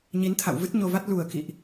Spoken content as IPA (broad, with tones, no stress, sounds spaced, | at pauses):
ɲ i˨˦ n t̪ʰ a̰˧˨ w v ɨ˦˥ t̚ ɲ o˧ v a˦˥ t̚ l u˨˩ ə̯ k ḭ˧˨ ʔ